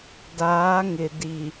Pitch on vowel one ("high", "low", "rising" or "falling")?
rising